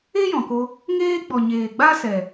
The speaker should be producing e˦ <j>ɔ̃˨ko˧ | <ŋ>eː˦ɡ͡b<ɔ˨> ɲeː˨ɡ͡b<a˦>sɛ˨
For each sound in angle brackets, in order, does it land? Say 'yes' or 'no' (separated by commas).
yes, yes, yes, yes